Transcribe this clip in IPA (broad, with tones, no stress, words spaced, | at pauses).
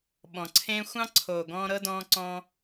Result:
ɓɔ̃˩ǀʰẽː˦ xʷɑ̃˥ǀʰoː˨ɡɔ̃ː˦ ɾɤ˥dɔ̃ː˦ǀɔ̃ː˦